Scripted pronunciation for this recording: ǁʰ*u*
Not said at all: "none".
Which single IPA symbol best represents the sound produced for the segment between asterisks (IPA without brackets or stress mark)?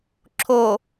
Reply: o